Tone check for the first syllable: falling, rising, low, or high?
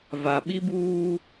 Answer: low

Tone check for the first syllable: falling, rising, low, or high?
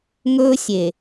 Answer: high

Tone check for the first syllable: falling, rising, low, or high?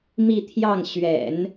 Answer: falling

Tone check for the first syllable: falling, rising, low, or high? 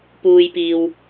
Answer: low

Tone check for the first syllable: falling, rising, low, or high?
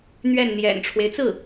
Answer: falling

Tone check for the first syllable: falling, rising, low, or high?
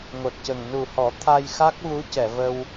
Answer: low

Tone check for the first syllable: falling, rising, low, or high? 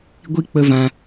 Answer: high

